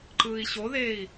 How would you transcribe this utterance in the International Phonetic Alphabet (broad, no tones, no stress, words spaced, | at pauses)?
ǃɯːi̯ɕoðeːi̯